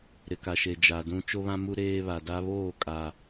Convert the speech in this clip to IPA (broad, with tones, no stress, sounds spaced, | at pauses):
ɾ ɪ˨ k a˨ ʃ e˨ d͡ʒ a˨ d ũ˦ t͡ʃ o˦ β ã˦ m u˦ ɾ eː˦ β a˨ d a˦ β oː˦˨ kʼ a˨